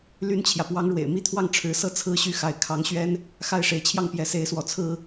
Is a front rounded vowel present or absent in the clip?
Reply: present